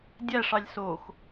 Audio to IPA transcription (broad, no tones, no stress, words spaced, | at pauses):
dʲæʂɑlʲ sox